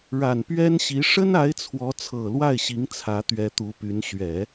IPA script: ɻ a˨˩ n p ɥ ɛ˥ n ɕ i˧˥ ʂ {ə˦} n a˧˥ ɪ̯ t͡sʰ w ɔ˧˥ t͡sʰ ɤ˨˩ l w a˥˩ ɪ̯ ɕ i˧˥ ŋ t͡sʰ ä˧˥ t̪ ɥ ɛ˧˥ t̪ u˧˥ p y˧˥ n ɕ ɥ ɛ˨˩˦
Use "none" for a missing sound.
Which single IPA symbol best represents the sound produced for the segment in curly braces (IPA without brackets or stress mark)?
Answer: ə˥